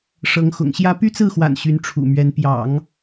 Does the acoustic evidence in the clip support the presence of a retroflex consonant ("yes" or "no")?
yes